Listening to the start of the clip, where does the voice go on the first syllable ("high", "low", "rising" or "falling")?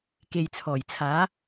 low